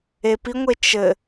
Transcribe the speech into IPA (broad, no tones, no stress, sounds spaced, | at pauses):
e p i ŋʷ e t͡ʃ ɘ